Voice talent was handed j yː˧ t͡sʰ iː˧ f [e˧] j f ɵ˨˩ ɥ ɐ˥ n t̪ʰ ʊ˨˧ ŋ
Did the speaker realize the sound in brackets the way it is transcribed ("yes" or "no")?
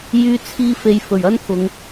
no